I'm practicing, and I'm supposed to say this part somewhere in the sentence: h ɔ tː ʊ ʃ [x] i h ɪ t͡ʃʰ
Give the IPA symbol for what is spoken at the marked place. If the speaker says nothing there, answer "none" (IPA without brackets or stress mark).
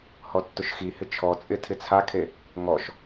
x